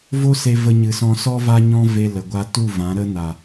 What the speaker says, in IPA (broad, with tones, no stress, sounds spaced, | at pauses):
v o˦ s e˧ v ə˧ ɲ ɨ˨ s ɔ̃˧ s ɔ˦ v a˦ ɲ ɔ̃˦ v e˧ l ə˨ ɡʷ a˧ t u˦˨ v ã˨˦ ɾ ə˦ n a˨